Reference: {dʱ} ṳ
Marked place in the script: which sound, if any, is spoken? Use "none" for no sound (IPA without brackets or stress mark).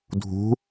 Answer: dʱ